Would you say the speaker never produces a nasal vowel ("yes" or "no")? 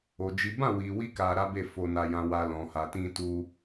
no